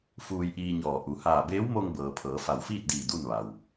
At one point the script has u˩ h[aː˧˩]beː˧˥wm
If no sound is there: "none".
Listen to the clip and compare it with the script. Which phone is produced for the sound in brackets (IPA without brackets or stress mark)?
aː˧˩